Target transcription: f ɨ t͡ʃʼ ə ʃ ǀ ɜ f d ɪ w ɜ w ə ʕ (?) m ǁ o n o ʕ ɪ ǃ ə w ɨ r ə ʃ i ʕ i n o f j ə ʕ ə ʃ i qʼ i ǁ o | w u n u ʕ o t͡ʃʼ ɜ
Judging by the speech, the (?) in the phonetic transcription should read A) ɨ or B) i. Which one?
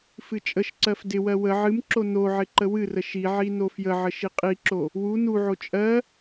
A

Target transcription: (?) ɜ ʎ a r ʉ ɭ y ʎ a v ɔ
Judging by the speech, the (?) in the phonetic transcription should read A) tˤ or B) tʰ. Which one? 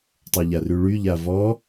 A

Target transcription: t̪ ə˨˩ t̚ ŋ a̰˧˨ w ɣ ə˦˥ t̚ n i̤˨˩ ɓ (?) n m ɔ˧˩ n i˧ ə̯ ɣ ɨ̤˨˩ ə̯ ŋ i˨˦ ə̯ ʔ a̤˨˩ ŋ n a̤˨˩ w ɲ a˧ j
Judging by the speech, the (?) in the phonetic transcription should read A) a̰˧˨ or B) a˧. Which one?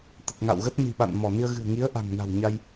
A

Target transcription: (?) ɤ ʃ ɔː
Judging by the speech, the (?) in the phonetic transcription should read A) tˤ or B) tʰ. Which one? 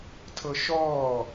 B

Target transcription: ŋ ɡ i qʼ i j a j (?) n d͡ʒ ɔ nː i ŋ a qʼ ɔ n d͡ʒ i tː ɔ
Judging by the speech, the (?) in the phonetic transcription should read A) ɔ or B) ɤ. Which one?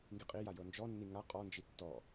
B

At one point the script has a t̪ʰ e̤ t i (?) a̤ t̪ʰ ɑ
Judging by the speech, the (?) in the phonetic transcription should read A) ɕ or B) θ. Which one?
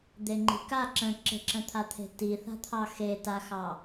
B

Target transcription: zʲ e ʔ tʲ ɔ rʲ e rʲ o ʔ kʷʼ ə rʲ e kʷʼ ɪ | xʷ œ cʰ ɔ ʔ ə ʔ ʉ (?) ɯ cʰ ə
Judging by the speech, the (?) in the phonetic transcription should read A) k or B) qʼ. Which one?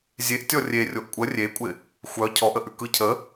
A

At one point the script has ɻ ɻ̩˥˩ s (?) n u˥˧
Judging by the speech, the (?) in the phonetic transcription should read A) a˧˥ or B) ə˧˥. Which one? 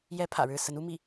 B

